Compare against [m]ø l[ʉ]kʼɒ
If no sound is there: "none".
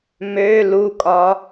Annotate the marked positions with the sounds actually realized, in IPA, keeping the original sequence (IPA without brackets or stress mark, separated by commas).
m, u